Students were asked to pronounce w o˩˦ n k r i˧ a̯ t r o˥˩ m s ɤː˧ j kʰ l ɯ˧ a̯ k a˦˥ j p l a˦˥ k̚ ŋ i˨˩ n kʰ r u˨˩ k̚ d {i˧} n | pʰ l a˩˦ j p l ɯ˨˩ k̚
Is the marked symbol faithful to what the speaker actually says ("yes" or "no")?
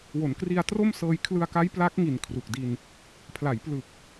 yes